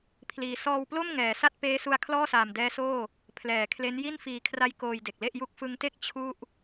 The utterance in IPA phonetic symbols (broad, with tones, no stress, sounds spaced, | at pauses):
pʰ l iː˨˩ s ɔː˧ w p l o˥˩ m ŋ ɛː˩˦ s a˥˩ t̚ p eː˦˥ s u˧ a̯ kʰ l ɔː˥˩ s aː˨˩ m d ɛː˦˥ s oː˥˩ | pʰ l ɛː˩˦ kʰ l e˦˥ n j i˥˩ n f iː˨˩ kʰ r a˧ j k oː˧ j d e˨˩ k̚ l e˥˩ ʔ j u˦˥ k̚ f ɯ˦˥ ŋ t e˥˩ k̚ t͡ɕʰ u˥˩ ʔ